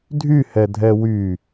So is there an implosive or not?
no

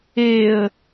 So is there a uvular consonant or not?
no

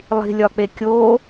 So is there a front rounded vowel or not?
no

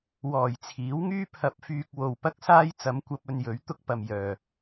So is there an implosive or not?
no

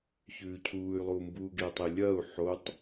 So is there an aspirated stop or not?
yes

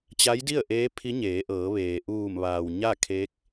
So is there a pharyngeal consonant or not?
no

